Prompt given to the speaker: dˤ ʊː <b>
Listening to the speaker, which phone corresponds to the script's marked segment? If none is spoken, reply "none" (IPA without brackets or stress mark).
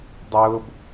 b